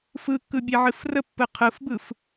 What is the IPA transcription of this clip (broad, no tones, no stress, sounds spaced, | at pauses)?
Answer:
f ɯ kː ɯ bʲ ɛ ʕ ɨ f r ə pː ɯ qʰ ɯ f b ɯ f